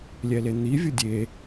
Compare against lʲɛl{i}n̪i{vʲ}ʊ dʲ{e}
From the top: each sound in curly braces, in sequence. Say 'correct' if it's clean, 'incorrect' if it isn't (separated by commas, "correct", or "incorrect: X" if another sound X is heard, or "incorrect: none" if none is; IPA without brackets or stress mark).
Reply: incorrect: e, correct, correct